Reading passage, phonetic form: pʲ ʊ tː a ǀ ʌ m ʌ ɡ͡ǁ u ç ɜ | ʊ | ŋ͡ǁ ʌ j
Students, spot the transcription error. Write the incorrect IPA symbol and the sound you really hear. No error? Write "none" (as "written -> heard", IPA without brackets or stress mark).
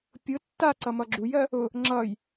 ç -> j